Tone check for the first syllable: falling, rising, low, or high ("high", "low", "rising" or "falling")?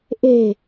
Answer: low